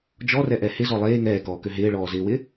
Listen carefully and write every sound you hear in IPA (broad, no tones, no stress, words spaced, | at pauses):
d͡ʒɔrɛʔɛ hɪzɔ lˠeː ŋɛːkɔːkø ɦɪːɭɔːzɪːwɪ